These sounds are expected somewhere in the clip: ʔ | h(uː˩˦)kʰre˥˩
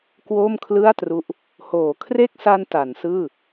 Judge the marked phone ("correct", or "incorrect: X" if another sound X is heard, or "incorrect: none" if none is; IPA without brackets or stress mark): incorrect: oː˩˦